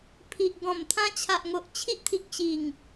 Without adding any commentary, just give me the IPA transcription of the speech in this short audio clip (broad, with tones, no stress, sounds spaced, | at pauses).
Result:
pʰ i˨ ʔ ɡ ɔ̃˨˩ m t̪ʰ ã˧ t͡ɕʰ a˨ ʔ ŋ o˨ ʔ t͡ɕʰ i˦ ʔ t̪ʰ i˨ k̚ ɕ i˨˩ ŋ